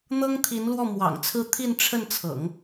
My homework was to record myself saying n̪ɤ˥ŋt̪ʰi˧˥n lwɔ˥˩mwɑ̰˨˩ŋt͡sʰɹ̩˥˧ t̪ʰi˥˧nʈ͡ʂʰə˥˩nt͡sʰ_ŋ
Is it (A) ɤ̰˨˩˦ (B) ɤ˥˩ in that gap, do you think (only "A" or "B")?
A